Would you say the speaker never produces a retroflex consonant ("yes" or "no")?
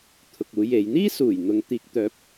yes